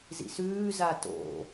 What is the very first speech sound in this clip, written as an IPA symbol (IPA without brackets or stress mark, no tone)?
z